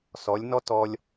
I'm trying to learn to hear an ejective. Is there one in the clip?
no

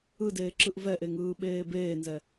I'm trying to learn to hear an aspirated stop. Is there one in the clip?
no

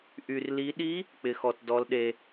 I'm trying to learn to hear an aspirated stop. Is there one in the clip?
no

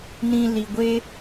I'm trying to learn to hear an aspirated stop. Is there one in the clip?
no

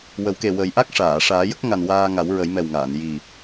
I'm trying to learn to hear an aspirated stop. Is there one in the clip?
no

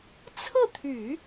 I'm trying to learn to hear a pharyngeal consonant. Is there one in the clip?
no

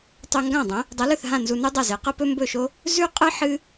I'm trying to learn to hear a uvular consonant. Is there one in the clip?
yes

